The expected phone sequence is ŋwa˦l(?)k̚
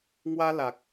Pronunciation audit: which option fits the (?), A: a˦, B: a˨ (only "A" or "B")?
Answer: B